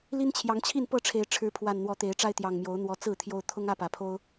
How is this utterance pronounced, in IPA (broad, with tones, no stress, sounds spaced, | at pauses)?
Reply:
l i˦ n t͡ɕʰ j ɑ˨˦ ŋ t͡ɕʰ i˥˨ n p ɤ˥˨ ʈ͡ʂʰ e˨˦ ɪ̯ ʈ͡ʂʰ ɻ̩˨˦ pʰ w a˨˩ n n̪ w ɔ˨˦ t̪ e˨˦ ɪ̯ ʈ͡ʂ a˦ ɪ̯ t̪ j ɑ˨˩ ŋ m j o˨˦ ʊ̯ n̪ w ɔ˨˦ t͡s ɹ̩˥˨ t̪ʰ j o˦ ʊ̯ t̪ʰ ʊ˦ ŋ ä˥˨ p ä˨˩ pʰ o˦ ʊ̯